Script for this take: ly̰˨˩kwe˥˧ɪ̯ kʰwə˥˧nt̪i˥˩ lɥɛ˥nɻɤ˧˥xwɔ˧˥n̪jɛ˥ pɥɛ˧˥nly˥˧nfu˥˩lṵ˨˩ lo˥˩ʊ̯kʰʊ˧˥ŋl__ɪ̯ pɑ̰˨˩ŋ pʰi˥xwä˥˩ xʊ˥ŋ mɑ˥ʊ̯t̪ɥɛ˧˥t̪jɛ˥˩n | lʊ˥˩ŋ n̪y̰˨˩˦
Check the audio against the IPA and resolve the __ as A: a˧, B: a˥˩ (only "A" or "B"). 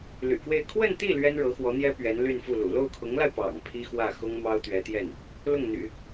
A